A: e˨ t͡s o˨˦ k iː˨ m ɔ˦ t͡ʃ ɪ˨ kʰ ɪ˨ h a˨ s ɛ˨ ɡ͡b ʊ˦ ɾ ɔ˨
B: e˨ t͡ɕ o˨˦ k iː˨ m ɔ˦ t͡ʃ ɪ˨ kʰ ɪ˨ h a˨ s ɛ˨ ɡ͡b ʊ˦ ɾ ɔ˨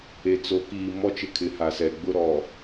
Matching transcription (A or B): A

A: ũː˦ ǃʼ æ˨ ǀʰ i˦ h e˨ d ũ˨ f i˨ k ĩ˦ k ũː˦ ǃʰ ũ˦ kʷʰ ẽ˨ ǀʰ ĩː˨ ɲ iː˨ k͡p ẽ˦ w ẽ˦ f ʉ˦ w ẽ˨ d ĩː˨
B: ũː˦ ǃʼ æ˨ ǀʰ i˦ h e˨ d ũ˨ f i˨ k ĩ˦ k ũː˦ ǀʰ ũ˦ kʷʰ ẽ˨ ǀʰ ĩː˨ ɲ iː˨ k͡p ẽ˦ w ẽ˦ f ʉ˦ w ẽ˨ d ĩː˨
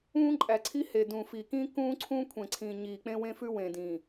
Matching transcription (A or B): B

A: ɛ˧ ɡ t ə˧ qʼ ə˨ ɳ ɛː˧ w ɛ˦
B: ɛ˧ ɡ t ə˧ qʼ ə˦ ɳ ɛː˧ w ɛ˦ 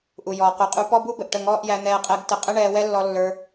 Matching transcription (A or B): B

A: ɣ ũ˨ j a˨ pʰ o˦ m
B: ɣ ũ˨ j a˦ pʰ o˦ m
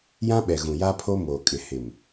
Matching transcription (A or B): B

